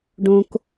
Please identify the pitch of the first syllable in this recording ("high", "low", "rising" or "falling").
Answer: high